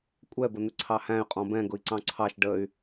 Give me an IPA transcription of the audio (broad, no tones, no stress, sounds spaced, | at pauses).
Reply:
kʷʼ ɛ b ə n̪ ɪ ǀʰ ɑ h æ̃ y̯ qʼ ɔ̃ b ɛ̃ ɡ ʊ i̯ ǀ ɑ̃ ǀʰ ɑ ʃ ɖ ə y̯